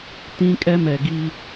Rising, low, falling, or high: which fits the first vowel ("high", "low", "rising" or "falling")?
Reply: high